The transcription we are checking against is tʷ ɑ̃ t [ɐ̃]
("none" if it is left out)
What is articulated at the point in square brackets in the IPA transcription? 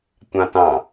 ɑ̃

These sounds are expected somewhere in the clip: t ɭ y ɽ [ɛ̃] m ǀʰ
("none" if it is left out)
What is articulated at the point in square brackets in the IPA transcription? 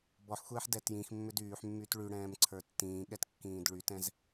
ɛ̃ː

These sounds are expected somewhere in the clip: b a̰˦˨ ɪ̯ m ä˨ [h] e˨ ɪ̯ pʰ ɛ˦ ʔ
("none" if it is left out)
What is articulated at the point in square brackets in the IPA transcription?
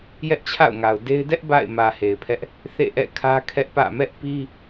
h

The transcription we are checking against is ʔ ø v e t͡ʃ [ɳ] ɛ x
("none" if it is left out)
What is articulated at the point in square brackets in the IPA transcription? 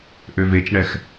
ɳ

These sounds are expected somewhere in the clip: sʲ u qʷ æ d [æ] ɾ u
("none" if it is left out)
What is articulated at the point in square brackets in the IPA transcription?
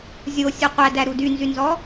æ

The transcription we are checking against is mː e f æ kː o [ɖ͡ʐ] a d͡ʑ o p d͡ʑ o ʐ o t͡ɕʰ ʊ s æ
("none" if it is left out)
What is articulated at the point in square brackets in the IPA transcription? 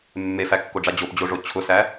ɖ͡ʐ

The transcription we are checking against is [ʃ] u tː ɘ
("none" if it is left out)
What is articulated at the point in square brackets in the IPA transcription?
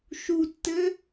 ʃ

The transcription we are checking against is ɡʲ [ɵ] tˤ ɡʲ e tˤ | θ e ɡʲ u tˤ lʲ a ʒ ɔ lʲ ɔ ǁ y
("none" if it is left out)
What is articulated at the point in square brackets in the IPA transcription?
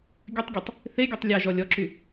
ɵ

